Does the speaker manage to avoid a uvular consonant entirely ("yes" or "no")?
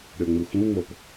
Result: yes